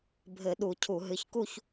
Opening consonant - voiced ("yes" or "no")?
yes